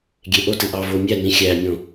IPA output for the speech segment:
ɡʲ e ʔ o t ɨ ʔ ɑ v o mʲ æ n ĩ xʲ æ mʲ õ

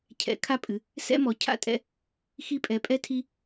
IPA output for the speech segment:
cʰ ɛ̰˨˦ kʰ a˦ pʼ ɨ˨˦ | s ɛ̰˦ m ɔ˨˦ cʰ a̰˦ tʼ ɛ̰˦ | x i˦ pʼ ɛ˨˦ pʼ ɛ˦ tʰ i˦

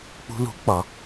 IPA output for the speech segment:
k͡p ṳ˧ l ṳ˨˦ k͡p ɒ˨˦

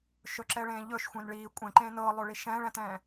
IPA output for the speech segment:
ʃ ɵ ǁ ɛ ɭ ẽː ʎ ɵ ʃ xʷ ẽ n ɭ iː kʷʼ ẽ ǃ ẽː n ɤː lˠ ɵ ɭ i ʃ ɛ̃ː ɭ ɛ̃ t ɛ̃ː

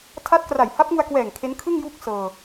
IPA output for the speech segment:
tʰ a˦˥ t̚ k r a˨˩ j h a˦˥ p̚ ŋ u˧ a̯ k w ɛː˨˩ ŋ kʰ e˦˥ n kʰ ɯ˥˩ ŋ j uː˥˩ k̚ s ɤː˧

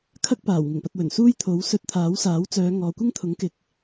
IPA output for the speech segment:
kʰ ɐ˥ k̚ p aː˨˩ w ŋ ɪ˨˩ ŋ p ɐ˨ t̚ w ɵ˨˩ n s uː˥ j t̪ʰ o˨˥ w s ɵ˧ t̚ t̪ʰ aː˨˥ w s aː˨˥ w t͡s œː˨˧ ŋ ɔː˨ kʷ ɪ˥ ŋ t̪ʰ ʊ˨˥ ŋ k ɪ˨˥ k̚

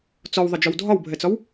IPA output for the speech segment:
t͡s ɔ w ðˤ ɪ d͡ʒ ɒ w dʱ ɒ w bʱ ɛ t͡s ɒ w

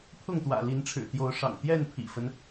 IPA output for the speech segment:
pʰ ʊ˥˨ ŋ t̪ w ä̰˨˩ l i˨˦ n ʈ͡ʂʰ ɻ̩˨˩ t̪ j o˨˦ ʊ̯ ʂ ɑ̰˨˩ ŋ t̪ j ɛ˥˨ n pʰ ḭ˨˩ f ə˦ n

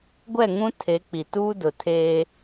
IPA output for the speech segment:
ɡʷ ɛ˦˨ ŋ ũ˦ tʰ e˨˦ k͡p i˨ t uː˦ d ʊ˨ tʰ eː˦

